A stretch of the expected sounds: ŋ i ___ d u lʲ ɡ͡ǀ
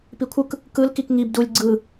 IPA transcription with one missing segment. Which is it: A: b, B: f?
A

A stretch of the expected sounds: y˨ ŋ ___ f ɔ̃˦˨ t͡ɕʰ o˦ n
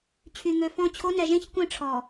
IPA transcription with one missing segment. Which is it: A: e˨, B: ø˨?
B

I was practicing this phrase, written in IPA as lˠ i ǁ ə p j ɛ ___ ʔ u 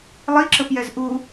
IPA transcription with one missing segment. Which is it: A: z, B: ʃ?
A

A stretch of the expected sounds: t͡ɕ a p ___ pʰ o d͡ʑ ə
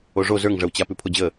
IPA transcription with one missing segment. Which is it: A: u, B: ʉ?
B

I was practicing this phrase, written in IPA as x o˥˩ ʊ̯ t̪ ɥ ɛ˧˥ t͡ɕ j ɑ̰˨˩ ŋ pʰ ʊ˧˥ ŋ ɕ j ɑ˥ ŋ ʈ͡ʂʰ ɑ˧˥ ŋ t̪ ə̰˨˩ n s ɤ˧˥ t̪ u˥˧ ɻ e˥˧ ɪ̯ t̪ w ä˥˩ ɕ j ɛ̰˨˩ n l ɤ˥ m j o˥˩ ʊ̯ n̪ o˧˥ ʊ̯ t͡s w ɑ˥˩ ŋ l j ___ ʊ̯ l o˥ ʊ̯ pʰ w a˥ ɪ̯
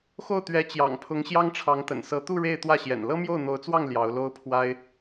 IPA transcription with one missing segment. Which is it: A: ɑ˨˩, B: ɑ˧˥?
B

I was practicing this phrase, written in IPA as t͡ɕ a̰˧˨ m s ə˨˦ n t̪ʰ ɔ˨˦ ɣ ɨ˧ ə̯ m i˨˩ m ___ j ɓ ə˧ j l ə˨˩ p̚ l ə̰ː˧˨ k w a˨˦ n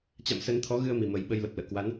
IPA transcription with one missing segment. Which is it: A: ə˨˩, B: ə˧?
A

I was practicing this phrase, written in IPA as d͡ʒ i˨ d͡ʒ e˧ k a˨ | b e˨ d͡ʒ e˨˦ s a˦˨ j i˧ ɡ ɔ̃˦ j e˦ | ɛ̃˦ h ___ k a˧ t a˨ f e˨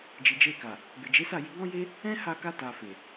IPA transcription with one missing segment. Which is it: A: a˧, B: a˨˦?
A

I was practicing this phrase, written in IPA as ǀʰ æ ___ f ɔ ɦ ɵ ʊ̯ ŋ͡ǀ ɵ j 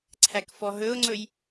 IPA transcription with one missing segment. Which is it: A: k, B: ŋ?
A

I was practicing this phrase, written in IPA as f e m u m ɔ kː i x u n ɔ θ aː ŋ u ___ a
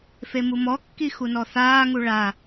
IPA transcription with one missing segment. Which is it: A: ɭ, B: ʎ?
A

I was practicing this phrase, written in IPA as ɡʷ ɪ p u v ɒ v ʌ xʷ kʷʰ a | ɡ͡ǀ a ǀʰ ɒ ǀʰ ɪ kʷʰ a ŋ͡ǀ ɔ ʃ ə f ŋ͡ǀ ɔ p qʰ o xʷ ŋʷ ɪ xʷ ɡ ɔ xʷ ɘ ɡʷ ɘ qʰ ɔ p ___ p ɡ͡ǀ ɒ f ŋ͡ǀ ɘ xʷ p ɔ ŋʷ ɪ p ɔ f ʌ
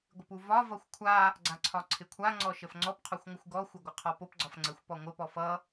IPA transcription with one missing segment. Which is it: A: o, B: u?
A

